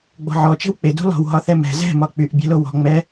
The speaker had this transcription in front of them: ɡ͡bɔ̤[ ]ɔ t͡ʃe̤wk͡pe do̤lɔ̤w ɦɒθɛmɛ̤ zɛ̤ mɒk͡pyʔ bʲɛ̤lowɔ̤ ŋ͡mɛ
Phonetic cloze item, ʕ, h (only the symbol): ʕ